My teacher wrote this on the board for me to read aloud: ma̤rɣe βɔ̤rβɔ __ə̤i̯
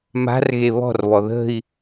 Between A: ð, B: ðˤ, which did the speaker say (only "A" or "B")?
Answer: A